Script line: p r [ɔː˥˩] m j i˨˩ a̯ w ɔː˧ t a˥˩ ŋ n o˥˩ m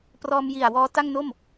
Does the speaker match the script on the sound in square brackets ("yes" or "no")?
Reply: no